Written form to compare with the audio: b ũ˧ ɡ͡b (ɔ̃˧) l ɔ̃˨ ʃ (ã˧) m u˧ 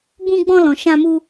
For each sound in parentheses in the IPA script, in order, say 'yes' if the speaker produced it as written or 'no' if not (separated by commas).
yes, yes